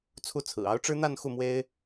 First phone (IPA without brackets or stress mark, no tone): t͡sʰ